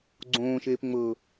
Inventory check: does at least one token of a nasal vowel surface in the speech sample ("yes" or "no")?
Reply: yes